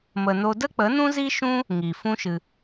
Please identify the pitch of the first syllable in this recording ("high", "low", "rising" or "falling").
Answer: low